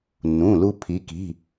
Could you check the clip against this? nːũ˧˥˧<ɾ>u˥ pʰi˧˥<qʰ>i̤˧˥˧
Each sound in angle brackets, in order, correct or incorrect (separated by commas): incorrect, incorrect